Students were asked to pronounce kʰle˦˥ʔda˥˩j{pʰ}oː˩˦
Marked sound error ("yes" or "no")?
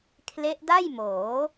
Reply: yes